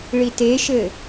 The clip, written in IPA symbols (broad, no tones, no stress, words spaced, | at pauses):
ɭiteʃɘ